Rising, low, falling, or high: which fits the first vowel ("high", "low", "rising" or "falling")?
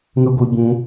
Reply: high